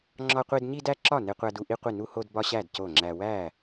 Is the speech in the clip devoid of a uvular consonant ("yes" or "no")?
no